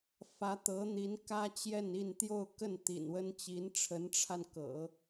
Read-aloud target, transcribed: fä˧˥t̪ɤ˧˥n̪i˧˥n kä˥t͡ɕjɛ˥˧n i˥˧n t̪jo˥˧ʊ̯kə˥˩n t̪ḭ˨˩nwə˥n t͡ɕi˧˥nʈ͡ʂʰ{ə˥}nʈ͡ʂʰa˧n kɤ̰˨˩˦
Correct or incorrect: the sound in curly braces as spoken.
incorrect: ə˧˥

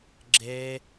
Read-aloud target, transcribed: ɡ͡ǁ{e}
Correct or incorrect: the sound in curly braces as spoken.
correct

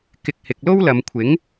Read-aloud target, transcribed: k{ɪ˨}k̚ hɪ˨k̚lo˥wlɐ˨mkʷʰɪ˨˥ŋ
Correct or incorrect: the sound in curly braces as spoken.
correct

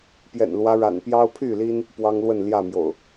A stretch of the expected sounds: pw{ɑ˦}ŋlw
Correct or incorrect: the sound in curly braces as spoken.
correct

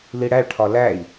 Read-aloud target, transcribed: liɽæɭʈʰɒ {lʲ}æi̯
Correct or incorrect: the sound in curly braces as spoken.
incorrect: l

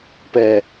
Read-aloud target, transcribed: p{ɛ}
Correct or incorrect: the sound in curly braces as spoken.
correct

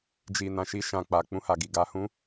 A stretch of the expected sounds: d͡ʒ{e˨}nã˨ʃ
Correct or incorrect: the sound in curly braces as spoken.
incorrect: i˨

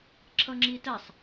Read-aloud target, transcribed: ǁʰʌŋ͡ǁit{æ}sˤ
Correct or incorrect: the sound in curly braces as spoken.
correct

